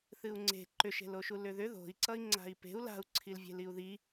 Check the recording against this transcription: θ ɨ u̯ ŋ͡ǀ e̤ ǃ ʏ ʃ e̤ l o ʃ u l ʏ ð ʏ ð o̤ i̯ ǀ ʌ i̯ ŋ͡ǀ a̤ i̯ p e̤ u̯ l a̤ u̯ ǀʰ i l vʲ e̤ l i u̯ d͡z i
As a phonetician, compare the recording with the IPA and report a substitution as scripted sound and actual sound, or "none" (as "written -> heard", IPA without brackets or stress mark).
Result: d͡z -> ð